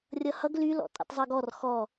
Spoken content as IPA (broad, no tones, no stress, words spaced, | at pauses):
rʲʌhʌɡ lylɔ̰ tʼḭtˤzˤɤɡɔr xɔ